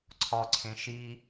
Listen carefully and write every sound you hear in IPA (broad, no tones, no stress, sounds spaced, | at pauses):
ǀʰ ɒ ǀʰ ẽ ʃ i